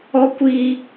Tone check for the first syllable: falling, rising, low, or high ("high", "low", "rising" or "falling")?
high